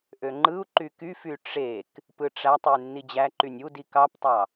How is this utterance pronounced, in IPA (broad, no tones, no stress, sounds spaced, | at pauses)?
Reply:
ʔ ø ŋ͡ǃ ɯ u̯ ǃ y k y f y ʈ͡ʂ e k | p ɯ ʈ͡ʂ æ tˤ y nː i d͡ʑ æ ǃ y nʲ u d i k ɑ p tˤ ɑ